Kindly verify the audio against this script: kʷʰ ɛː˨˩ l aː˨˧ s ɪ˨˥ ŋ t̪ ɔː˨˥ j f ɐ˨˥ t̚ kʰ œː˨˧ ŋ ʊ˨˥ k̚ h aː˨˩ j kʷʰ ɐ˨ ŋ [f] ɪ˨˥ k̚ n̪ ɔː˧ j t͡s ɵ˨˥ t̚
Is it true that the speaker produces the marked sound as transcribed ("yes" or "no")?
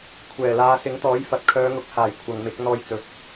no